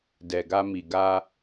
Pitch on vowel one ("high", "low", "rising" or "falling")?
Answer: low